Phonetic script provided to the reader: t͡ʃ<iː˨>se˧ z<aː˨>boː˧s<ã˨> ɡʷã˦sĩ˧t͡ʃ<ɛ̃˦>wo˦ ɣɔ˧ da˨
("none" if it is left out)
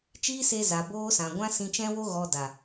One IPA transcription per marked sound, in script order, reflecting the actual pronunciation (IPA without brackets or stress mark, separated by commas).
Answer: iː˦, a˨, ã˨, ɛ̃˦